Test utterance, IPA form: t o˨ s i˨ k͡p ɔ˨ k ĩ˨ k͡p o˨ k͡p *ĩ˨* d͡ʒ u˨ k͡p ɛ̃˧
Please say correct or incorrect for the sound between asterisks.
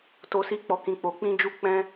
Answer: correct